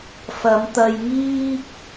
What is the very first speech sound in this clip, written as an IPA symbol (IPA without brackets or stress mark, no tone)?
f